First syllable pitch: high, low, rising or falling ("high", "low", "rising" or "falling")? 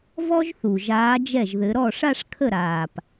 high